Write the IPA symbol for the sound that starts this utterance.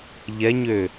ʎ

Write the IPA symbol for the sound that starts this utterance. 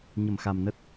ɲ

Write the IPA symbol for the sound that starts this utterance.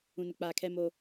ũ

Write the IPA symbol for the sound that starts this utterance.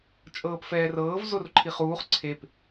t͡ʃʼ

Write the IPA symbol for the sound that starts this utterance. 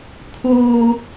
kʰ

